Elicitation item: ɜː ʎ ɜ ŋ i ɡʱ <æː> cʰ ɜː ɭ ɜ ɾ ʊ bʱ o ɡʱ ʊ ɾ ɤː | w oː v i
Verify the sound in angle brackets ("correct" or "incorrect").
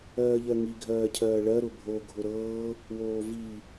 incorrect